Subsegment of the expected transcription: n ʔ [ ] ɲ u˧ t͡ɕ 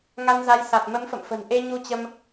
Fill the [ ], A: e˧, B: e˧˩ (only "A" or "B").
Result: A